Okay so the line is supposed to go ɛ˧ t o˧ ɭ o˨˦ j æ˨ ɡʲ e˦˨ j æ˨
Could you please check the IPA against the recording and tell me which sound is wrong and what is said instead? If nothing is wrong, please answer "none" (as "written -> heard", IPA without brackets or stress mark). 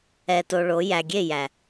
none